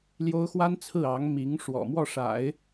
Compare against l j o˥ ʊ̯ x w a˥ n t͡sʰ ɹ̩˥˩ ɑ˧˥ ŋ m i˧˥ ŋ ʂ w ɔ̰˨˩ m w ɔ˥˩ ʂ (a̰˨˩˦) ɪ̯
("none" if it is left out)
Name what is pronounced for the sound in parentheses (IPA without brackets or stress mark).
a̰˨˩˦